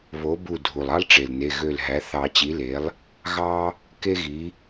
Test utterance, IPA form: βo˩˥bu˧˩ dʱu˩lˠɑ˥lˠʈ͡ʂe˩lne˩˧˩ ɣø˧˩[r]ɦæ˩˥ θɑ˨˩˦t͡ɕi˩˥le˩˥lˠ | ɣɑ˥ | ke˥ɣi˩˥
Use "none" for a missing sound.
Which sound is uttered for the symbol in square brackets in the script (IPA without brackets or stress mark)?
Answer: l